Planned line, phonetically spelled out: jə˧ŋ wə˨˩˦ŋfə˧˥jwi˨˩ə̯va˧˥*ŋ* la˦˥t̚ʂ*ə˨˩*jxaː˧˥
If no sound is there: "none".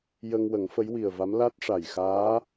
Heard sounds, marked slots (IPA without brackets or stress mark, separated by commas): m, a˨˩